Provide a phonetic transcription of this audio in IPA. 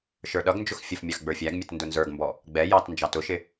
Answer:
ʃ ə˞ ɗ ʌ ɡ n d͡ʒ ʊ x fʲ ə f mʲ ɑ x ɡ͡b ə˞ fʲ æ ɡ mʲ ʌ t n d ʊ n z ə˞ ɡ m b ɔ | ɡ͡b ɛ j ɑ t n d͡ʒ ɑ t ʊ ʃ ɪ

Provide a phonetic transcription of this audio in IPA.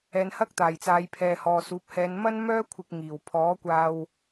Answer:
ɛː˨ n h ɐ˥ k̚ t̪ aː˨˩ j t͡s aː˨˧ j pʰ ɛː˨ h ɔː˨ s uː˨˥ p̚ h ɛː˨˧ n m ɐ˥ n m œː˥ kʷʰ ɪ˧ k̚ ŋ iː˨˩ w pʰ ɔː˨˥ kʷ aː˧ w

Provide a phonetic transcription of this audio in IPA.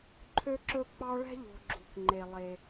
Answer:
ǃʰ ø˥ ǁ ɵ˥ k͡p ɑ˦ ɭ ɛ̤˥ ʎ o̤˨ ɡ͡ǁ ṳ˩ k ŋ͡ǃ e˩ lˠ e˩

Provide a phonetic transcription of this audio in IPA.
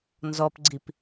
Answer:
n z ɔ p ɡ͡ǀ i p

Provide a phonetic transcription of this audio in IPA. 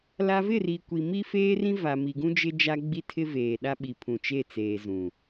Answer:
l a˦ v ɪ˦˨ r i˨ kʷ i˨ m i˦ f eː˦ r ĩ˦ v a˨ m i˨ ɡ ũ˦ d͡ʒ ɪ˦ d͡ʒ a˦ ɡ͡b i˦ tʰ ɪ˦ v eː˨ ɗ a˦ ɓ i˨ pʰ ũ˨ t͡ʃ e˦˨ t͡s eː˨ z ũ˨

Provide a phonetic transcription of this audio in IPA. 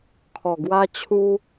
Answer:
kʰ ɔ˨˩ ɡ w a˦ t͡ɕʰ u˦

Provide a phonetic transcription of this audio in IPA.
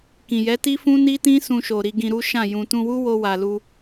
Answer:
k ĩ˨ j ɛ˨˦ t i˦ f ũ˦ n i˦ t ĩ˦ s ũ˧ ʃ o˨ ɾ i˧ ɡ ĩ˧ ɾ u˦ ʃ ã˦˨ j ũ˨ t ũ˧ w u˦ w o˧ w a˨ l u˧

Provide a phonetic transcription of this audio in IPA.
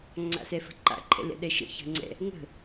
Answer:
ŋ͡ǀ a̰ s ɛ f ə̤ ǃ a̰ ǃʰ ɛ̰ l ɛ̰ ɗ ɛ ʃ ə̰ ç ə̤ ŋ͡ǀ ɛ̰ | ŋ ə̤

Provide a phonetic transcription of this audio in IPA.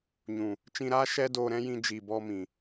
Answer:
ɲ ũ˨ | t͡ʃ ĩ˧ ɾ aː˦ ʃ ɛ˦ d oː˧ ɾ ɛ̃˦ j ĩ˧ d͡ʒ iː˨ b ɔ˧ m ĩ˨

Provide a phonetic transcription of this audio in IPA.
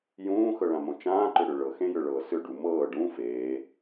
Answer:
j ũː x ɤ ɭ ã m õ t͡ʃ ãː ǃ ʏ ɽ ʏ ɭ ɤ x ẽ j ʏ ɭ ɤː s ʏ ɖ u m ɤː ɖ ũ f eː

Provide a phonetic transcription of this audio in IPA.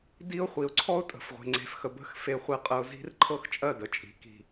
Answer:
d i˦ ʊ̯ χʷ i˨ ʊ̯ ǀʰ ɔ˦ ʊ̯ tʼ ə̤˨ f ʁʷ e̤˨ ŋ͡ǀ e̤˨ f x ə˨ b ə̤˦˨ x f e˨ χʷ e˨ qʼ ə˨ ʊ̯ z i̤˦ r ǃʰ ɤ˦ x t͡ʃʼ ɜ˦˨ d ə˨ t͡ʃʼ i̤˨ k i̤˨

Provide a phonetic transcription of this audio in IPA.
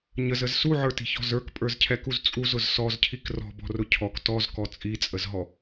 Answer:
ɲ ə z ə z s u ʕ ə˞ t i̤ ç ɔ̤ z ə˞ k pʼ ə˞ z cʰ ɛ k u z t͡sʼ u z ʊ z s ɔ z cʰ i k r ɔ̤ b ɔ̤ r ʊ cʰ ɔ k t ɔ z k ɔ t͡sʼ i t͡sʼ ə z ɦ ɔ

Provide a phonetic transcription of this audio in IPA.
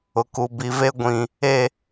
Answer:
ʊ˨ k u˨ b i˨ v e˦ ɡʷ ĩ˨ | e˦˨

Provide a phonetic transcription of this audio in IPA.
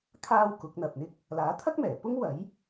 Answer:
kʰ aː˥ w k ʊ˨˥ k̚ n̪ ɐ˨ p̚ n̪ ɪ˥ k̚ | l aː˨˥ t̪ʰ ɐ˥ k̚ m ɛː˨˩ p ʊ˥ ŋ w ɐ˨˥ j

